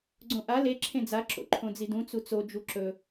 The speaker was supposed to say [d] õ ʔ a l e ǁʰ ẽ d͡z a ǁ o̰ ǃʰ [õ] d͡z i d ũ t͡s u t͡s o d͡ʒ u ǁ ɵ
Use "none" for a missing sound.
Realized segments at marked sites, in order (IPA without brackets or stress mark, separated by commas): ɡ͡ǀ, õ